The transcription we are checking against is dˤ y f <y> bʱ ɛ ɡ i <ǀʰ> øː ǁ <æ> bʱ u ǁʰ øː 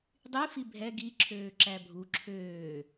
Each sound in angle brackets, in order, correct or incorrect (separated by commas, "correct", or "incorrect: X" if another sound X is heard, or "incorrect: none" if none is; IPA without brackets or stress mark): incorrect: i, incorrect: ǁʰ, correct